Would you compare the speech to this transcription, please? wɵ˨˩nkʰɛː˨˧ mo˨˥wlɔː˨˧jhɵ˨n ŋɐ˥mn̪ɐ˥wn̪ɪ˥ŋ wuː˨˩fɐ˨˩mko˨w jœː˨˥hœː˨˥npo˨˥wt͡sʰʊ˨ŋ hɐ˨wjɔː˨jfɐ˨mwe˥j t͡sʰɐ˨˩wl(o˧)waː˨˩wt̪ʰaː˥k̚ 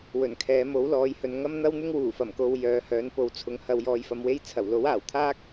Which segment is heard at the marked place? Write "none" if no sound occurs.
o˨˥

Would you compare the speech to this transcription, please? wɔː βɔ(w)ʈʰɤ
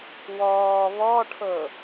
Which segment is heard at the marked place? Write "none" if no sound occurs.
none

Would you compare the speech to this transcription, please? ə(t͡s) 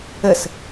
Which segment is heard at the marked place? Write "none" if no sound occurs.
s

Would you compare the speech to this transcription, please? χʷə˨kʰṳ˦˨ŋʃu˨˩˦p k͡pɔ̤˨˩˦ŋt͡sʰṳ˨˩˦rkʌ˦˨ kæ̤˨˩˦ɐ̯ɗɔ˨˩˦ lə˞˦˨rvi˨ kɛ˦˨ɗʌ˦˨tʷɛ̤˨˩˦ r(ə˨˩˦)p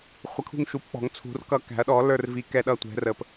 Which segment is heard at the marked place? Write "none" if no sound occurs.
ə˨˩˦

